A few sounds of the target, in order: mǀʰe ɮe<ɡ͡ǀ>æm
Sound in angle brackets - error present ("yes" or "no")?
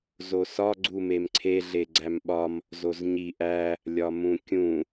no